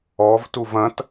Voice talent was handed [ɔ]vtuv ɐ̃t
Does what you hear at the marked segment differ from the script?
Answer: no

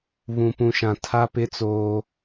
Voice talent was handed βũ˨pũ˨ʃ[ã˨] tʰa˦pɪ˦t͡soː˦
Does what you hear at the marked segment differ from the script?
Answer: no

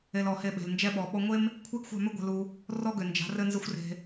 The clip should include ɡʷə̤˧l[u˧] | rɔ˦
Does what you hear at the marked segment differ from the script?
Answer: no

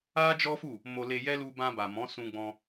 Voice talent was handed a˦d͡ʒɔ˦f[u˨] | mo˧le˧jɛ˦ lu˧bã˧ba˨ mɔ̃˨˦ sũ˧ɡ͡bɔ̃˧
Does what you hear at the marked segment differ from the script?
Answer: yes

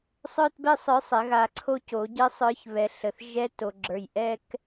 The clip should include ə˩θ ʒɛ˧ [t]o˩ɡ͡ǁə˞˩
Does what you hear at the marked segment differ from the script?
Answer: no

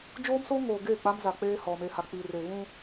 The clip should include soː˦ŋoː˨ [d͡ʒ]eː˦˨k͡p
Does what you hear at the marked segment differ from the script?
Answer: yes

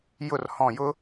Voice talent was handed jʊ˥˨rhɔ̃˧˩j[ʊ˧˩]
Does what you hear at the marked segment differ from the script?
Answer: yes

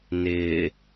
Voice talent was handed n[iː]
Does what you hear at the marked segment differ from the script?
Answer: yes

